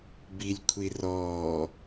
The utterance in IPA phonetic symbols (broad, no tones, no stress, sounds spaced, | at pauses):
b i lʲ kʷʰ i r ɔː